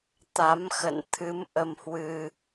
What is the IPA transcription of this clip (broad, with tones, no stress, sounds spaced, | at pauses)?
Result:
t̪ a˨˦ m x ə̰˧˨ n t̪ʰ ɨ˨˦ m ʔ ə˧ m h w ɨ˧